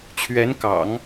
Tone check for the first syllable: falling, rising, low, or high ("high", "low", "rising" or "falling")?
rising